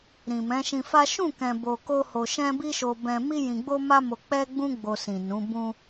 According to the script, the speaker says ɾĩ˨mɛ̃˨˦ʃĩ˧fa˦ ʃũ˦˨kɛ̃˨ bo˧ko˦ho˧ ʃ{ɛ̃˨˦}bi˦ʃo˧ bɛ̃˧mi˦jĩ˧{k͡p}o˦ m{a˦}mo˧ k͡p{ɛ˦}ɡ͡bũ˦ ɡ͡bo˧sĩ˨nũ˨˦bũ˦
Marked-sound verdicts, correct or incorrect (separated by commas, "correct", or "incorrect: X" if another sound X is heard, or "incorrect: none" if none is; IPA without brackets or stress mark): incorrect: ɛ̃˦, incorrect: ɡ͡b, correct, correct